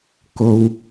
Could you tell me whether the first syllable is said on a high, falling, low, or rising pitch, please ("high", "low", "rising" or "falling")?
low